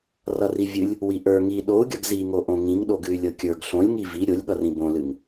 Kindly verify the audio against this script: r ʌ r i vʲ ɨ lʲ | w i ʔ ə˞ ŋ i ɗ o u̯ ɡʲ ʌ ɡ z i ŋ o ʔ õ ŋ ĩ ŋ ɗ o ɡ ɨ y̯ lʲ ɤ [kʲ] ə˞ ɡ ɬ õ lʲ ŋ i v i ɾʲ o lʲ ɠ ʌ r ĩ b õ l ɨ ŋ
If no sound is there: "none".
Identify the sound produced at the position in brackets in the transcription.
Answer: kʲ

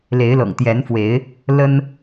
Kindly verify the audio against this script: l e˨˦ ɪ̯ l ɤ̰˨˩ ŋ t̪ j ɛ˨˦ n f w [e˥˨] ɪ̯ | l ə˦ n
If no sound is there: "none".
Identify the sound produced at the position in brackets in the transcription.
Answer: e˨˦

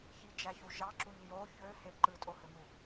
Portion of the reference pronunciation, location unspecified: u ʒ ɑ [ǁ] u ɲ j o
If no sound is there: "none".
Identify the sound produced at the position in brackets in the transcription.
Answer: ǁ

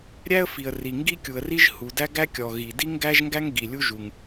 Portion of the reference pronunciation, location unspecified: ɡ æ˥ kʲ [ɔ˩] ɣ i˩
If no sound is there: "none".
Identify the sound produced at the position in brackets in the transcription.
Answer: ɔ˩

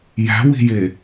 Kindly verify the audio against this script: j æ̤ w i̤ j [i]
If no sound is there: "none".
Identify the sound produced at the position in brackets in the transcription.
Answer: e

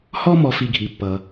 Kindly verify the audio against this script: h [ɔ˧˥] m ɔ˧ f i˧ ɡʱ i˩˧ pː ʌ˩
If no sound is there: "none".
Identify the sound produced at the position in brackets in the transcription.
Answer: ɔ˥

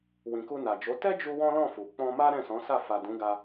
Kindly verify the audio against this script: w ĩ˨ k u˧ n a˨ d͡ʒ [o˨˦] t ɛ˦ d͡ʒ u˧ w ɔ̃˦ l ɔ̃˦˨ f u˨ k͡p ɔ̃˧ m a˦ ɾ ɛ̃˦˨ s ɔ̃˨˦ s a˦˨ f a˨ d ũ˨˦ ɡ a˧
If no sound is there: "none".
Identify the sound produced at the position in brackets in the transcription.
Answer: o˨˦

